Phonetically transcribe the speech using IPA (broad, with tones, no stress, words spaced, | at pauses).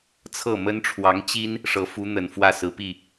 t͡sʰɤ˥˩mə˥n ʈ͡ʂʰwɑ˧˥ŋt͡ɕi˥n | ʂɤ˧˥fu˧˥n̪ə˨˩n fwä˥˩sɹ̩˧˥pi˥˩